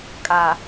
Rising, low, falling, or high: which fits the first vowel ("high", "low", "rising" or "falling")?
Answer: low